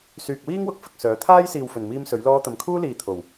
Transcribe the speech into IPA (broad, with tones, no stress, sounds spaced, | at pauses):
s yː˨ k̚ w iː˥ ŋ w ʊ˨˥ k̚ f ɪ˧ k̚ s œː˨˥ t̪ʰ aː˥ j s iː˨ w f ɵ˨˩ n m iː˧ m s ɵ˨˥ ɥ l ɔː˥ t̪ ɐ˧ m kʰ uː˥ l iː˨ t̪ʰ o˨˩ w